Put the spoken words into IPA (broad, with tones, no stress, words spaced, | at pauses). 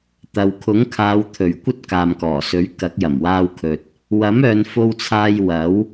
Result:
t̪ɐ˨wkʰʊ˨˥ŋkʰaː˨˧wt̪ʰɵ˨˩ɥ kʷɐ˥t̚kaː˨mkɔː˨˩sɵ˨˥ɥ kɐ˨˥k̚jɐ˨˩mwaː˥wkʰɵ˧t̚ | wɐ˨˥mœː˨˧nfo˧wt͡sʰaː˧j wɐ˨˥w